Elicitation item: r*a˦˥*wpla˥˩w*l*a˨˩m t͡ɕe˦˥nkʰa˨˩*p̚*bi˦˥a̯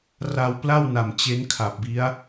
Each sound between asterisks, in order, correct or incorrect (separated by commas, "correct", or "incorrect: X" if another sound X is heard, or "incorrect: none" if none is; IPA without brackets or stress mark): incorrect: a˧, incorrect: n, correct